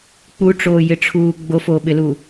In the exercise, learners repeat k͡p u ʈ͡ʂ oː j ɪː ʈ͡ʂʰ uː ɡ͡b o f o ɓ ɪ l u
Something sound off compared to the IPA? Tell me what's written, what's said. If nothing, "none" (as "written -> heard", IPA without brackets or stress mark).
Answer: ɪː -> ɪ